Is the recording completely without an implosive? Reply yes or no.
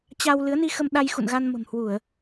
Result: no